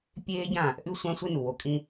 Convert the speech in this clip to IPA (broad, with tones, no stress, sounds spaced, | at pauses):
pʲ eː˦ ɟ ã˦˨ | ʔ ʉ˦ sʷ ã˦ sʷ e˦ n u˨ w o˨ kʼ ĩ˦